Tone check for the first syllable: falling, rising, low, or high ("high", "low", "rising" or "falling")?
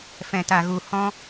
low